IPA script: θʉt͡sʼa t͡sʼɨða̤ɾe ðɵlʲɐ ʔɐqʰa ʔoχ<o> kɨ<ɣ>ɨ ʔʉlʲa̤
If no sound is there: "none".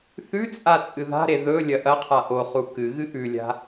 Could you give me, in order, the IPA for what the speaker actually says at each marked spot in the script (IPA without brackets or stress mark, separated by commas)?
u, ɣ